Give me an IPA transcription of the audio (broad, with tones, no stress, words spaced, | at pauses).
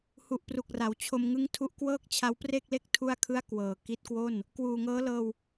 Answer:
hu˨˩ʔpru˨˩k̚ra˩˦w t͡ɕʰo˧mŋɯ˦˥ŋtʰu˦˥ʔ kwɤː˥˩k̚t͡ɕʰa˦˥wpre˥˩k̚ le˥˩k̚ tʰu˥˩a̯kʰɯ˥˩a̯ kwɤː˨˩ ki˦˥t̚kwo˥˩n | kwuː˨˩ŋɤː˦˥lɤː˧w